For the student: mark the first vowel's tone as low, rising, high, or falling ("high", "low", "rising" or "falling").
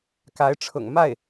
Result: rising